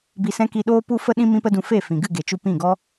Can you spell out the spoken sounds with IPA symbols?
b i˧ s ɛ̃˦ k i˧ ɗ oː˦ p u˦ f ə˦ ɗ ĩ˦ m ĩ˦ p ə˦ d ũ˧ f e˦˨ f ĩ˨ ɡ ɨ˦˨ ɡ e˨ t͡ʃ u˧ p ĩ˦˨ ɡ ɔ˦

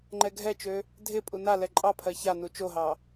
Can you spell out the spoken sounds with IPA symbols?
ŋ͡ǃ ɛ ɡʱ ɛ t͡ʃ ø | dʱ ɪ pʼ u n a l ɛ ǃʼ ɑ pʰ ɜ ç a n u t͡ʃ o ɦ ɑ

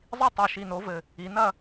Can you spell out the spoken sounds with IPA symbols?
zˤ i˦˨ tˤ o˨˩ ʃ i˨˩ n o˩˧ v ɘ˨˩ | i˩˧ n ɐ˦˨

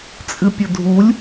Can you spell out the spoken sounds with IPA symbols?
t͡sʼ ɨ pʲ ə dʱ u lʲ

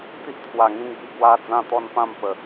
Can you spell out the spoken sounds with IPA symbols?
t̪ i˦ ʔ t̪ʰ w a˨˩ ŋ ĩ˧ ŋ b i˧ ɡ w a˦ d͡z ã˥˧ t̪ ɔ˥˧ n p ã˥˧ m p ə˨˩

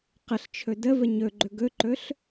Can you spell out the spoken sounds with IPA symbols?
q ə ɬ t͡ʃʰ ɵ d ə v ə ɲ ɵ ɡ͡ǃ ɵ ɡ ɵ ǃ ɵ ɬ

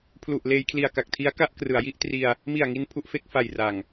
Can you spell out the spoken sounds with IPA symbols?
pʰ l u˨˩ ʔ l eː˧ j kʰ l i˨˩ a̯ k a˨˩ k̚ tʰ i˦˥ a̯ k a˥˩ ʔ k r ɯ˩˦ a̯ j i˥˩ ʔ t r i˧ a̯ | m i˨˩ a̯ ŋ i˧ n pʰ u˦˥ ʔ f e˦˥ k̚ f a˨˩ j r a˨˩ ŋ

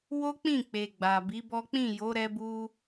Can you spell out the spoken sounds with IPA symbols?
w o˦ k͡p ĩ˦˨ k͡p e˨ ɡ͡b a˨ b i˨˦ b ɔ˦ k͡p ĩ˦˨ j o˨˦ ɾ ɛ˦ b u˦

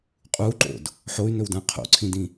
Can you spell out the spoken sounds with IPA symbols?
qʼ u ǃ o̰ d | ħ o y̯ n ɵ w d ã qʰ o̰ ǀʰ ĩ d ĩ

